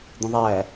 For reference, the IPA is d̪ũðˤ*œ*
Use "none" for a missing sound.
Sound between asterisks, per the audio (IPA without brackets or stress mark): æ